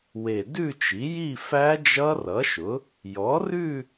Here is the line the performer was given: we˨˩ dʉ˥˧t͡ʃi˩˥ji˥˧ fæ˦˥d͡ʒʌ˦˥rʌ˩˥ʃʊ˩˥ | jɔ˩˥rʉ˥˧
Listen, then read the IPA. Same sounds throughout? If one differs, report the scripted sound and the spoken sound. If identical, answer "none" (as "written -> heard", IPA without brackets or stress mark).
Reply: none